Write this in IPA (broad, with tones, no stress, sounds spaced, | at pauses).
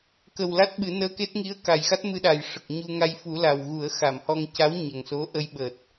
k ə˨˩ w l a˦˥ t̚ ɓ ɨ˨˩˦ n əː˧ k e˦˥ t̚ ŋ i˧˥ ə̯ k a˨˩ j x a˦˥ t̚ m ɨ˧ ɗ a˨˩ j ʂ ə˨˩ k̚ ɲ u˧ ŋ a˧ j f u˨˩˦ l a˨˩ w ɣ u˨˩˦ ə̯ x a˨˩˨ m h ɔ˧ ŋ c a˧˥ w ɲ ə˨˩ ŋ s o˧˥ ʔ ə˧ j ɓ əː˨˩ t̚